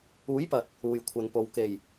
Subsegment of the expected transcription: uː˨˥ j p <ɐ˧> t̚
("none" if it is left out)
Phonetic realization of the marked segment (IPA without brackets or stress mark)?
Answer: ɐ˨